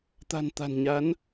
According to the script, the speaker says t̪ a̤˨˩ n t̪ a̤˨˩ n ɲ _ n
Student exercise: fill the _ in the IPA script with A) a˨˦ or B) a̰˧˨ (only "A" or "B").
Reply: A